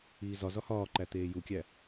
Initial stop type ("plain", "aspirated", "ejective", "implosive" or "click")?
click